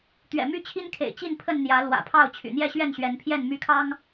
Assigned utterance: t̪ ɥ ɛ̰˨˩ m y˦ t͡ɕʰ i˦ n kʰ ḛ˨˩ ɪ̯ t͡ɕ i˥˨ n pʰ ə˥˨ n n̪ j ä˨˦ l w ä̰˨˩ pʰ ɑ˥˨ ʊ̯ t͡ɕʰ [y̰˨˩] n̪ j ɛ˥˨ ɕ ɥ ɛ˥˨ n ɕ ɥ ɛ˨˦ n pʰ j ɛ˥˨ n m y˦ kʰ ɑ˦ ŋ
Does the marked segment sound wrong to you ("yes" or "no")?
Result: no